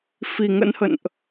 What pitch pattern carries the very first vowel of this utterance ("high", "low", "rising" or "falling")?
low